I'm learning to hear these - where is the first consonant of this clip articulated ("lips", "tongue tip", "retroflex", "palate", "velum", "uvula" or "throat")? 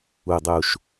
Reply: tongue tip